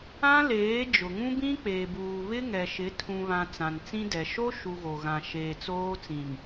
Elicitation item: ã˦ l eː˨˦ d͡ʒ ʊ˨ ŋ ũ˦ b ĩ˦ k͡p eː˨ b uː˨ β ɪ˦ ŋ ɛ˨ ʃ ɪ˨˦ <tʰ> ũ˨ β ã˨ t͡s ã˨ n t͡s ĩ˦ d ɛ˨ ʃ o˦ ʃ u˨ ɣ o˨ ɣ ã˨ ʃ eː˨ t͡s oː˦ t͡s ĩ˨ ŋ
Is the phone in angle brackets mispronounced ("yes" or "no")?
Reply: no